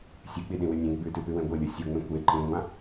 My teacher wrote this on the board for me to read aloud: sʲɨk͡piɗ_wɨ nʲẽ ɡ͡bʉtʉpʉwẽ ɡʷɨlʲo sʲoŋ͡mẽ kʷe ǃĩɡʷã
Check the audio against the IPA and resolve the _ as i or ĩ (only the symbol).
ĩ